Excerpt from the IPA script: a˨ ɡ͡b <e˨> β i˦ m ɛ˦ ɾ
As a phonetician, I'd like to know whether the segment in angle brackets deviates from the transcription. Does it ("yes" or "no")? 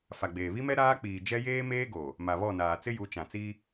yes